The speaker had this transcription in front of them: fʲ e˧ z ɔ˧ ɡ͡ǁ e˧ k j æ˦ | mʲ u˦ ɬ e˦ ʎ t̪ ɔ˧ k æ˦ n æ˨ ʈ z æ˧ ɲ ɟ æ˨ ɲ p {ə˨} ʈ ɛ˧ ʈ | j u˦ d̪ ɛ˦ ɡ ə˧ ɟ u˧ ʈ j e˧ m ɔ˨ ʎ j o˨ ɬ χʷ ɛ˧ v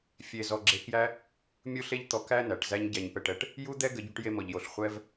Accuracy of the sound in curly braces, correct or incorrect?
incorrect